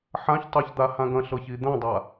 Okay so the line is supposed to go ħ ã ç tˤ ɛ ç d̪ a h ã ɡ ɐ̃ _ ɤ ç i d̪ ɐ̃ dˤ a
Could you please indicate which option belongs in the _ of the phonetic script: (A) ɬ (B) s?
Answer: A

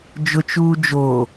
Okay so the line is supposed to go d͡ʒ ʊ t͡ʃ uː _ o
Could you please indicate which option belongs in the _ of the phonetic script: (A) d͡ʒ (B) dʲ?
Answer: A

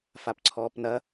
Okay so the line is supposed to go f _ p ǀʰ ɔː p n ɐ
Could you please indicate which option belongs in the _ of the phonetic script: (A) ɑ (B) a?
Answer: B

